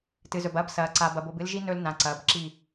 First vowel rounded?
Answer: no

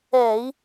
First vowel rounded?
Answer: no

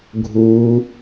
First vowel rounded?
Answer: yes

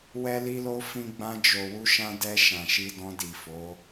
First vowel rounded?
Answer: no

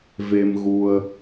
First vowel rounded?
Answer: no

